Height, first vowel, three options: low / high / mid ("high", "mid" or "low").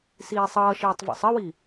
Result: high